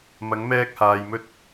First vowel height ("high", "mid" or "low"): low